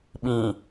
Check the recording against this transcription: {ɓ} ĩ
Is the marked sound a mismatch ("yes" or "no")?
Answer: no